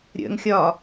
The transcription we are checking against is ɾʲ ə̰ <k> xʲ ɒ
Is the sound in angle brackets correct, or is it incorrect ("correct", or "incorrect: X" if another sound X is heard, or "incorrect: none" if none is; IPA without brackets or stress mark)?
incorrect: ŋ